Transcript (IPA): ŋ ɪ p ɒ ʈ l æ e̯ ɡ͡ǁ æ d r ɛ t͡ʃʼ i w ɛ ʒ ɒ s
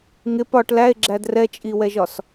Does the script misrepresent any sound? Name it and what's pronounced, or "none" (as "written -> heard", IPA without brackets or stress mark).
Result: none